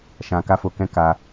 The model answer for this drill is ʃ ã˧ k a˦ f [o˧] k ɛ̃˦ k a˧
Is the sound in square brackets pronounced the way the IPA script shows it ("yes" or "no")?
yes